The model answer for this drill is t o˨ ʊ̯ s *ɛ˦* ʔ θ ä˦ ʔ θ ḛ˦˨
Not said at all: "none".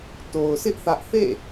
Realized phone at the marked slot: ɪ˦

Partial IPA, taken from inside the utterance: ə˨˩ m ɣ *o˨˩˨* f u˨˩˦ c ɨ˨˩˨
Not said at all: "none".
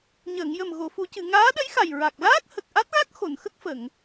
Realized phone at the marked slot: o˨˩˨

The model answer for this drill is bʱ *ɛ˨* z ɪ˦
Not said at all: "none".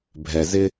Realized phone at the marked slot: ɛ˨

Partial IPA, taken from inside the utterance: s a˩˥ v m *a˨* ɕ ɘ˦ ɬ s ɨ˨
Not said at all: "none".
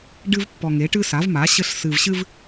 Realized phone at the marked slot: a˩˥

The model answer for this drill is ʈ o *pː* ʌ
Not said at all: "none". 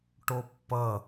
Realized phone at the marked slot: pː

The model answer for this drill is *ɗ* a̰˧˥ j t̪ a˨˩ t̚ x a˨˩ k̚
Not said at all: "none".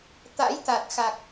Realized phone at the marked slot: t̪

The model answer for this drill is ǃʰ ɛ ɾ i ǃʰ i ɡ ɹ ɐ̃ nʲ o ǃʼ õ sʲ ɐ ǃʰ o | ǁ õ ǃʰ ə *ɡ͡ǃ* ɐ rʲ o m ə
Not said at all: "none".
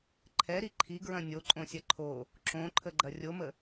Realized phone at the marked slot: ɡ͡ǃ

